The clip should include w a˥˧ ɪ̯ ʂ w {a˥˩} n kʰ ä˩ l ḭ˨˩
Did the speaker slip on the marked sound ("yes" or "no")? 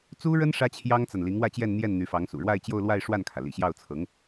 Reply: no